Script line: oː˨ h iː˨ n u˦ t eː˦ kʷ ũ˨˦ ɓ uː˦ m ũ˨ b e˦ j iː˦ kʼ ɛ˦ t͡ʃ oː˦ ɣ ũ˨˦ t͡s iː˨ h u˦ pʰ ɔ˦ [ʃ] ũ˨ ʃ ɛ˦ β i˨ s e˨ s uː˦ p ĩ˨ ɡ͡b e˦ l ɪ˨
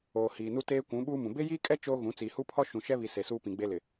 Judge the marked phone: correct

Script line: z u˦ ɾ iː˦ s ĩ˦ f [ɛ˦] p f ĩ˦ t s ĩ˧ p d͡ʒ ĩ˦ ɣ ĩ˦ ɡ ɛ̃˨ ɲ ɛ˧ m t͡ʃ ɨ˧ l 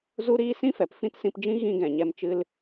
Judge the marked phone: incorrect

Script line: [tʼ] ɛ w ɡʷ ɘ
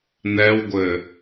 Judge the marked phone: incorrect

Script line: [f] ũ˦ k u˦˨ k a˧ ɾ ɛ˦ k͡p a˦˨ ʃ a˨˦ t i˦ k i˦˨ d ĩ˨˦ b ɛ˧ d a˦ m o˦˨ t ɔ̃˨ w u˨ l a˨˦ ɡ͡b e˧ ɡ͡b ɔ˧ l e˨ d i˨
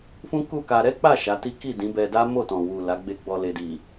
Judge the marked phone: correct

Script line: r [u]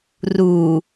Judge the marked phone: correct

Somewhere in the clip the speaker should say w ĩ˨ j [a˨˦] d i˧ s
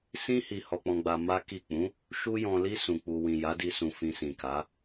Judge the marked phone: correct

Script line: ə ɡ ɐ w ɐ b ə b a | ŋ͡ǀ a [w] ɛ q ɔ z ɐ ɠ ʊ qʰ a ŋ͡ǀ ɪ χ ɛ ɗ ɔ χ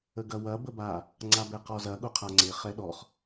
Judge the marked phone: incorrect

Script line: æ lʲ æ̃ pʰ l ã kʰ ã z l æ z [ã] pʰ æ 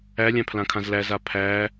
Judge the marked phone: incorrect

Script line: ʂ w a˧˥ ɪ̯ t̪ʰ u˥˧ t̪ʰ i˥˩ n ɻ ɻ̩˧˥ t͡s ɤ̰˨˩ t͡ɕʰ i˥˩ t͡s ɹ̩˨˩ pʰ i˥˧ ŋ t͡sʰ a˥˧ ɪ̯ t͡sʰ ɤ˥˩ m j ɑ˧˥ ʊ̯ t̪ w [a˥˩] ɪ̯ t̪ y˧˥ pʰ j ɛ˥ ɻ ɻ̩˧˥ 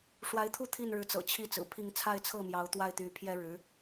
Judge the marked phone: correct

